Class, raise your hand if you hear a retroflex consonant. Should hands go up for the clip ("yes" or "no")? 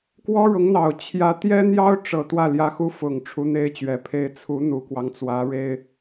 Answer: yes